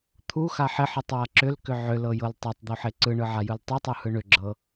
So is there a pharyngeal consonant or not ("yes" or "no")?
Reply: yes